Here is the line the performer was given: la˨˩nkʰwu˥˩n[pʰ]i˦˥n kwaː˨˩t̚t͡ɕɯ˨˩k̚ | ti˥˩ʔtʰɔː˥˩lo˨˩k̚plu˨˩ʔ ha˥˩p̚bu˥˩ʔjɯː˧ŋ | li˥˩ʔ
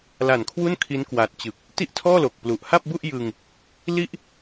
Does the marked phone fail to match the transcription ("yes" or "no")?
yes